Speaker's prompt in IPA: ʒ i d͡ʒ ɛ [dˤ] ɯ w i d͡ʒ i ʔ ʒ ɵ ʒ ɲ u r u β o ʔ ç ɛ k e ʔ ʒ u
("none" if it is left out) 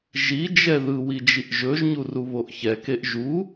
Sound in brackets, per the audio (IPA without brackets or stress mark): ð